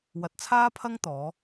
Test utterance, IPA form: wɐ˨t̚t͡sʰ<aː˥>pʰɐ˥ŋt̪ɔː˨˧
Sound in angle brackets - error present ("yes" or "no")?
no